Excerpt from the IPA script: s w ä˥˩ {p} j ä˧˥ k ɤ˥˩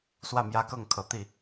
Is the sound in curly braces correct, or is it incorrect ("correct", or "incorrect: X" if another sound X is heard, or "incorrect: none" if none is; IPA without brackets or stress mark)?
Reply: incorrect: m